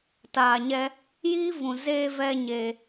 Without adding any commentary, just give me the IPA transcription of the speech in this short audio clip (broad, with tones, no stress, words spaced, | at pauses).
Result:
taː˨ɲɛ˧ | jiː˦ vũ˨zeː˧ vɛ˧ ɲe˧